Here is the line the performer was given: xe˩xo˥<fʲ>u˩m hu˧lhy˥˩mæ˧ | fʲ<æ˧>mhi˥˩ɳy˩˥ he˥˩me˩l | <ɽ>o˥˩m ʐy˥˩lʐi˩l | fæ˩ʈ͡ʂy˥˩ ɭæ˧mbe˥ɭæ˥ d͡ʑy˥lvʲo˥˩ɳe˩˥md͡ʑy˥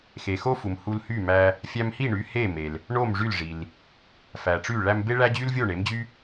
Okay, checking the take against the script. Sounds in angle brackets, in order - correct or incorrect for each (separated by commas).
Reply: incorrect, correct, incorrect